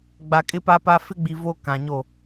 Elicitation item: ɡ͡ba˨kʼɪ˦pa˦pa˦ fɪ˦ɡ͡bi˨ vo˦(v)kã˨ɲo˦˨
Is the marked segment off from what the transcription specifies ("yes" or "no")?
yes